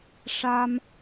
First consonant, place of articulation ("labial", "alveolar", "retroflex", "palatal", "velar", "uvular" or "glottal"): retroflex